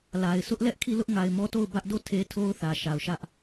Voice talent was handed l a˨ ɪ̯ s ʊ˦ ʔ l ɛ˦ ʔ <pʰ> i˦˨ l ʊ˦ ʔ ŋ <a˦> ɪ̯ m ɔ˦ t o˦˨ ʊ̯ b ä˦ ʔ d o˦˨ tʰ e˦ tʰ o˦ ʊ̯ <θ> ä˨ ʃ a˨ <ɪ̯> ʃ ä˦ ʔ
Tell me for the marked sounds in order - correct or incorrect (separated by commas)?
incorrect, incorrect, correct, incorrect